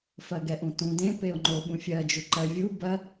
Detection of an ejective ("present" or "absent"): absent